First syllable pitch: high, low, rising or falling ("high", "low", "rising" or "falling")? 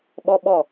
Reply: high